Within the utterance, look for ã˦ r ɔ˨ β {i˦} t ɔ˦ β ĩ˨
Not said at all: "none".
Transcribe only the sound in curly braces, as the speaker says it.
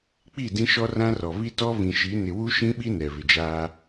i˦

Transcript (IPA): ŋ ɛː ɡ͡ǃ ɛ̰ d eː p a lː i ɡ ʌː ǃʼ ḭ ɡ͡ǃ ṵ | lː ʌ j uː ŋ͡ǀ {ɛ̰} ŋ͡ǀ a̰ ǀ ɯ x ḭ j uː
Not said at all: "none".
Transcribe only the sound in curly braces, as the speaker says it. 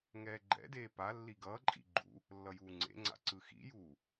ḛ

